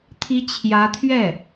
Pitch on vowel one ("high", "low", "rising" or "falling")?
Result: rising